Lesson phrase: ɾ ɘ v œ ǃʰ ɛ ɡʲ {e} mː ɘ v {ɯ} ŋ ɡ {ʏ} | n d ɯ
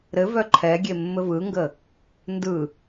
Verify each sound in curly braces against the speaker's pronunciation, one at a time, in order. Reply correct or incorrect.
correct, correct, incorrect: ə

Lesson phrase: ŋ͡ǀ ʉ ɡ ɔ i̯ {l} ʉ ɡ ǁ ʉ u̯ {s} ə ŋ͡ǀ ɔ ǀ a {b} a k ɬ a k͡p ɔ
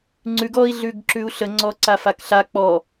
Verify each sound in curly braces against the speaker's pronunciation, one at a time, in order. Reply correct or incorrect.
incorrect: ɮ, incorrect: ɬ, incorrect: f

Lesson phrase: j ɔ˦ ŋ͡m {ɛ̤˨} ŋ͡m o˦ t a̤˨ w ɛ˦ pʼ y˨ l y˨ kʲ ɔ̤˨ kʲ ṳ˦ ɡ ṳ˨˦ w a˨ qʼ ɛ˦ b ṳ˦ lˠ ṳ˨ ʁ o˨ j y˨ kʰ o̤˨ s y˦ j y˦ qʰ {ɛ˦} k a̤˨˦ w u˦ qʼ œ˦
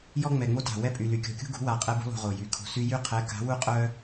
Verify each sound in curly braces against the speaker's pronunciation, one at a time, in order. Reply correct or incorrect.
incorrect: ɛ˨, incorrect: ɛ˨˦

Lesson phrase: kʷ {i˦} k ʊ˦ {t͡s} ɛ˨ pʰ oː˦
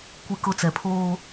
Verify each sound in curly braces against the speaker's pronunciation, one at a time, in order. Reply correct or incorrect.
correct, correct

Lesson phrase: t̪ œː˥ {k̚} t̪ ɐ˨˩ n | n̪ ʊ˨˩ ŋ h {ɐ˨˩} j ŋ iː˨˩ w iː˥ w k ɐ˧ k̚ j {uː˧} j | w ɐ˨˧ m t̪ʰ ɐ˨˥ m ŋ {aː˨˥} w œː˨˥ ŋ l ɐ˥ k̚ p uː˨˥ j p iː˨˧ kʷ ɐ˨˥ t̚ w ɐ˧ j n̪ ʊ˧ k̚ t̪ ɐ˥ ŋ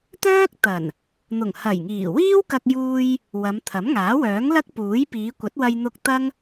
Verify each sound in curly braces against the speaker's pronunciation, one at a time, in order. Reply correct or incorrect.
correct, correct, correct, correct

